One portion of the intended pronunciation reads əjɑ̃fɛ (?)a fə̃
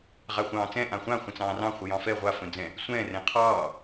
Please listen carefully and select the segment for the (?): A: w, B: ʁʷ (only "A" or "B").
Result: B